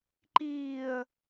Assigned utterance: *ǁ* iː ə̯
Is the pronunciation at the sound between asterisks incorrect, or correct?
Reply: incorrect